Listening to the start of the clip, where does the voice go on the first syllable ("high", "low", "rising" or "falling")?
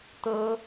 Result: high